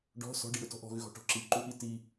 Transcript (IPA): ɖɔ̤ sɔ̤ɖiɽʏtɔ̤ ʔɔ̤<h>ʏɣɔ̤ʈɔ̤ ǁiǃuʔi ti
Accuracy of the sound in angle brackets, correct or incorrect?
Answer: incorrect: ɣ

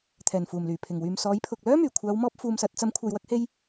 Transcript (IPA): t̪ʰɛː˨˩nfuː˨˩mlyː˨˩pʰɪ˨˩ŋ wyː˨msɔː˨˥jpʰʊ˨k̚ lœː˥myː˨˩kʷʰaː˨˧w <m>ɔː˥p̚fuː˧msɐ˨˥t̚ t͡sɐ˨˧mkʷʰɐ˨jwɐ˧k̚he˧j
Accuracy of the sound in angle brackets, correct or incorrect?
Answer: correct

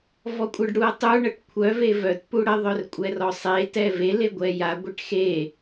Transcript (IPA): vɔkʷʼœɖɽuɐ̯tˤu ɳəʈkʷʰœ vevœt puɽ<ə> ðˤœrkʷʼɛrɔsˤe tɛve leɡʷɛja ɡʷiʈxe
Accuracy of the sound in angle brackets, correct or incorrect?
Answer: correct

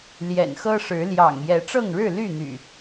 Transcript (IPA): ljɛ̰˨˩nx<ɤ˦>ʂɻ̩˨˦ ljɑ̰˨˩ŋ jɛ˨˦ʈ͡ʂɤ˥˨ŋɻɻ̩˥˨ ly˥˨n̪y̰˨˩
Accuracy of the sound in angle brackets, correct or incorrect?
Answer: correct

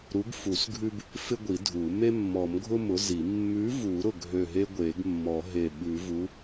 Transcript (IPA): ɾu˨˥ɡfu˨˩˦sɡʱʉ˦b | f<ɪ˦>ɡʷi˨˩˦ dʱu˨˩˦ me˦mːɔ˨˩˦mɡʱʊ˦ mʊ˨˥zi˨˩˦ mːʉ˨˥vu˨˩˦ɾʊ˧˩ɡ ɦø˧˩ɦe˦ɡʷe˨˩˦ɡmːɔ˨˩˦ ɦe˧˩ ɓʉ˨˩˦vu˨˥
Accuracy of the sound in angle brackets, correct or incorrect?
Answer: correct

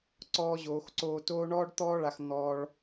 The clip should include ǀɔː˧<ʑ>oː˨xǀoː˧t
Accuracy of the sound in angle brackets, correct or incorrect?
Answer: correct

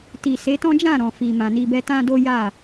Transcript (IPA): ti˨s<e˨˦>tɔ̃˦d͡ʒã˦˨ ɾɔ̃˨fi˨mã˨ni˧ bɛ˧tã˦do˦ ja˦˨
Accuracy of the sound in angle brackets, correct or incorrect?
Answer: correct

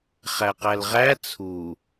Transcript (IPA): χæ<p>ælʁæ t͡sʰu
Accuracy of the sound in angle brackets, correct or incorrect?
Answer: incorrect: q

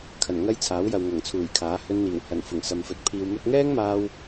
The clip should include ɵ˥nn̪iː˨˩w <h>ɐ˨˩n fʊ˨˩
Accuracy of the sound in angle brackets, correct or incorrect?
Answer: correct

